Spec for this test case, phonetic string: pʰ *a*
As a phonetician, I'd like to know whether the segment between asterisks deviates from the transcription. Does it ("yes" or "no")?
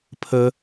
yes